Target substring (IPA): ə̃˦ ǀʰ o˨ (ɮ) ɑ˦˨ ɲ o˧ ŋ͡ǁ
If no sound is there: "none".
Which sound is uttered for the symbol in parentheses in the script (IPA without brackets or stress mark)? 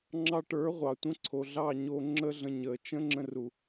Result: ɮ